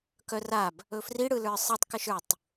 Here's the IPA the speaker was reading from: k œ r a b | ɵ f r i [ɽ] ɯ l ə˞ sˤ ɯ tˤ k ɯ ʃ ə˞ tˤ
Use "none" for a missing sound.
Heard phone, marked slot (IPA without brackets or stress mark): ɽ